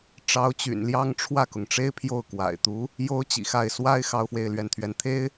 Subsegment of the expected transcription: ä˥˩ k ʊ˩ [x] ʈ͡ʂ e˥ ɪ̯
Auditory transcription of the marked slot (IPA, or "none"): ŋ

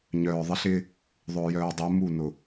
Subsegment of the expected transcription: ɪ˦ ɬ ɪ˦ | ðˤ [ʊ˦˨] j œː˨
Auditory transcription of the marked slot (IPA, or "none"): ʊ˨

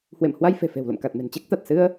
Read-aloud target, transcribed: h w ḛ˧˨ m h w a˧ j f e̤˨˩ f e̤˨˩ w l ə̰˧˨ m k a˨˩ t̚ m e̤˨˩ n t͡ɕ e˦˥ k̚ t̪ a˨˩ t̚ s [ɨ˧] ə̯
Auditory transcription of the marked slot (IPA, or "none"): ɨ˧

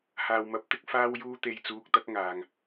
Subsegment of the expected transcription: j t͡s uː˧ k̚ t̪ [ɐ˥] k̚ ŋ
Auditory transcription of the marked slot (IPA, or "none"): ɐ˥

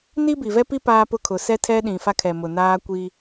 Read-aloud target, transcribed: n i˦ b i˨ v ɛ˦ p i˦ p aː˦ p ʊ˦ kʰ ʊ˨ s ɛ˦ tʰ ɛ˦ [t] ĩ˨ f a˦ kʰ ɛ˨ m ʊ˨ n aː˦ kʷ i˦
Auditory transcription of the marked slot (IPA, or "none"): ɗ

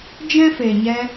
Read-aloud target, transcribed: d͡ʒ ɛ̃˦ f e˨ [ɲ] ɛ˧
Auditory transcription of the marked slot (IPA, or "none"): ɲ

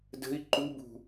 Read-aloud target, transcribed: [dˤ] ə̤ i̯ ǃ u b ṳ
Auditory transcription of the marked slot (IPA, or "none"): d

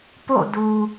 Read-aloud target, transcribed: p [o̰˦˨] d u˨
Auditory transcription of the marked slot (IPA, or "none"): o̰˦˨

